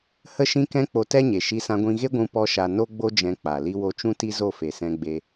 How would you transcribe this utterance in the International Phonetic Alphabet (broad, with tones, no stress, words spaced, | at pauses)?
hə˦ʃĩ˦kɛ̃˦ k͡po˧tɛ˦ɲe˨ ʃi˧sã˧ɡʷĩ˧ɣe˦ ɡʷũ˧pɔ˧ʃa˨ no˦ɡ͡bo˦d͡ʒɛ̃˧ k͡pa˨ li˧wo˧t͡ʃũ˦ ti˦zo˦˨fe˨sɛ̃˧ ɡ͡be˦